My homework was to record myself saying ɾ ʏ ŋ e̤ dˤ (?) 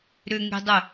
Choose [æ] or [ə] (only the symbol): ə